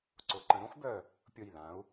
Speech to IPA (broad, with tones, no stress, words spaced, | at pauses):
ǀʊ˩˧ǃə̃˩˧ ɾõ˥xbœ˧˩ | pʲʊ˧˩jlã˩˧u̯